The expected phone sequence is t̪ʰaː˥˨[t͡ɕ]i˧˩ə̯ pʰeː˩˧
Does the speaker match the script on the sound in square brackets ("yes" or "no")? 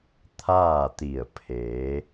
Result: no